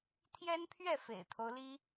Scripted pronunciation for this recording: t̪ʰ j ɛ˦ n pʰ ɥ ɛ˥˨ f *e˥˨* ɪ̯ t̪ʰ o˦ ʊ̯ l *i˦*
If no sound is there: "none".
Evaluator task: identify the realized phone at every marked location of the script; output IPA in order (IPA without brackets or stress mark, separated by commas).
ḛ˨˩, i˦